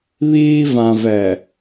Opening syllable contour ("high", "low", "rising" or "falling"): high